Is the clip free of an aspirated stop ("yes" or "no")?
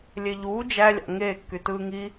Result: yes